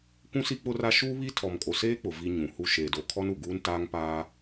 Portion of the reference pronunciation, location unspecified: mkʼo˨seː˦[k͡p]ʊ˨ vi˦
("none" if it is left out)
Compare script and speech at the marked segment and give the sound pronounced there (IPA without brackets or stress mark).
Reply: k͡p